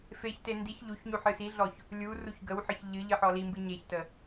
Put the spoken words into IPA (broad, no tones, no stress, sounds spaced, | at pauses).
f e ç t e n d i ç ʎ u ç ɲ u ħ ɨ s i ɮ ɔ ç | lʲ u r u ç ɡ ə w ħ ə ç ʎ ɨ ʎ ɨ ħ ɔ l i m b ɨ ɲ e ç t ə